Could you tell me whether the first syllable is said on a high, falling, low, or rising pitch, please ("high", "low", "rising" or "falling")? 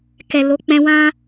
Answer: low